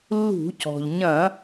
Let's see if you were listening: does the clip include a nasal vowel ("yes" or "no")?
yes